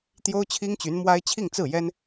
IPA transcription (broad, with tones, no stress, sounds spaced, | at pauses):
t̪ j o˥ ʊ̯ t͡ɕʰ i˥ ŋ t͡ɕ y˧˥ n m w a˥ ɪ̯ t͡ɕʰ i˥˧ ŋ t͡s ɹ̩˥˩ j ɛ˥ n